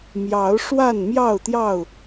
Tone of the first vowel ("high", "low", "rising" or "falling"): rising